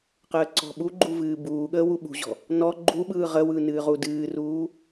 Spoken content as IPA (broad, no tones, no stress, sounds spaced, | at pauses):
q əː ǀ ɔ̤ ɓ u ɡ͡ǃ u v ɨː b uː ɠ əː w u ɓ ṳ ʑ ɔ̤ | n ɔ ɡ͡ǃ u ɓ ɯː ʁ ə w ɯ n ɨː ʁ u d ɨː r uː